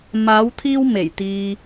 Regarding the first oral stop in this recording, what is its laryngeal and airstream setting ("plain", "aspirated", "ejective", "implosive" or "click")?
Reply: aspirated